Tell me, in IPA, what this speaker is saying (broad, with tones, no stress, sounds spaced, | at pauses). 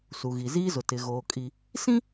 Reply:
s u˨ ɣ i˨ z iː˦ z ʊ˨ t ɪ˨ ɣ oː˨ kʼ i˨ | s ĩ˦